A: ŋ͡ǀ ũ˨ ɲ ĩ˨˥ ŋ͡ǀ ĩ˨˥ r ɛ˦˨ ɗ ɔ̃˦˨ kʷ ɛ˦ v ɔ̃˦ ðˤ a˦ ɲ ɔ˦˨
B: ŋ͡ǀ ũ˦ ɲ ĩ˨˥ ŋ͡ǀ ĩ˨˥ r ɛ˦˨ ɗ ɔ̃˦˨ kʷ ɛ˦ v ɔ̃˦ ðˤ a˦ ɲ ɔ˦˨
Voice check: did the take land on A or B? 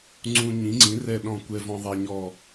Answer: B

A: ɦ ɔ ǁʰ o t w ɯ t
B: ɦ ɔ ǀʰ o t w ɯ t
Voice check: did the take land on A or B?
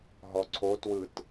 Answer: B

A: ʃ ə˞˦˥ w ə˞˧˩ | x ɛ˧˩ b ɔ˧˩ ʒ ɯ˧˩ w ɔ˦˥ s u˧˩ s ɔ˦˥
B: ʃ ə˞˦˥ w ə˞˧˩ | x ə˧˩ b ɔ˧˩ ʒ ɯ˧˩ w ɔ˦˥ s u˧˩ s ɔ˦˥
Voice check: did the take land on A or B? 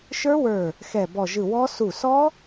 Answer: A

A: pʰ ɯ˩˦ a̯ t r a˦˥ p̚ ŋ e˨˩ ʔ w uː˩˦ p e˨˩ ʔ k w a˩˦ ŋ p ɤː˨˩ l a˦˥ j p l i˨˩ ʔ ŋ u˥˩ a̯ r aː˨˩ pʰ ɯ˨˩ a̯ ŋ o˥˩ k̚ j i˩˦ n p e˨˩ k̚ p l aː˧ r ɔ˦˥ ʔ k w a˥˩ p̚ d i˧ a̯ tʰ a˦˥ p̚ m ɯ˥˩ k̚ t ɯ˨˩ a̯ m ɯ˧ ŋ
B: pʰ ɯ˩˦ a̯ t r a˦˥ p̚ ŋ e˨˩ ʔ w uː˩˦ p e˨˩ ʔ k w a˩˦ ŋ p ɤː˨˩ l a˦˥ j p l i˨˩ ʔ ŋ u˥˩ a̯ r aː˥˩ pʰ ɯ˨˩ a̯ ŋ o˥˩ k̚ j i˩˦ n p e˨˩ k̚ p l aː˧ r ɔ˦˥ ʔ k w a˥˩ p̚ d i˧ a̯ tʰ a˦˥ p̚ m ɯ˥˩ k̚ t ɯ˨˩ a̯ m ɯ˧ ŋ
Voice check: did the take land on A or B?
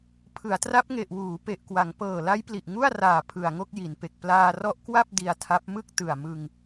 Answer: A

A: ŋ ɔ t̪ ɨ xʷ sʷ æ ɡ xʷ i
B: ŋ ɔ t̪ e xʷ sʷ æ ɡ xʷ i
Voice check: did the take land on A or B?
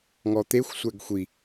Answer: B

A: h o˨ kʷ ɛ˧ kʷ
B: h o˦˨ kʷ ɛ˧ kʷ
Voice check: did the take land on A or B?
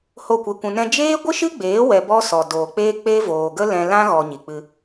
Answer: B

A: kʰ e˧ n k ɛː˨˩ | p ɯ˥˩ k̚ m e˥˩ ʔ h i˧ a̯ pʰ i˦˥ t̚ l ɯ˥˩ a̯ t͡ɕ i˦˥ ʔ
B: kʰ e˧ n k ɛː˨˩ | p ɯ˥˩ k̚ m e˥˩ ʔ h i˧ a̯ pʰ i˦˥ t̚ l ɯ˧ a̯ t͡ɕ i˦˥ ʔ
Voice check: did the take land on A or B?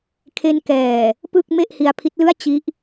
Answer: A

